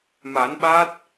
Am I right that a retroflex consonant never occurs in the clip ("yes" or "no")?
yes